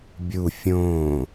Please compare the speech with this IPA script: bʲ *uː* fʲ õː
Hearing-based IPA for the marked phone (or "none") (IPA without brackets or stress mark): u